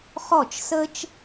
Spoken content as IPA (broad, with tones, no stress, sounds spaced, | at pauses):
χ ɔ˦˨ t͡ʃ s ə˦ t͡ʃ